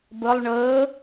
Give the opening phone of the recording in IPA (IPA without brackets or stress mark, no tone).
b